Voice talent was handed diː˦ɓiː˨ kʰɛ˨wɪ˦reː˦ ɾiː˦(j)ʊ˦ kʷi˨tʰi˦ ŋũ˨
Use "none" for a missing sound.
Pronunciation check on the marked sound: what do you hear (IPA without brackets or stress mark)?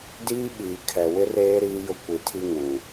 j